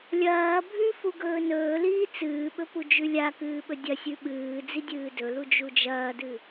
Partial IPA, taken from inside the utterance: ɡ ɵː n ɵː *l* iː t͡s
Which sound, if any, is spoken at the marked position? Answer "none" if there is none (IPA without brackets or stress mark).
l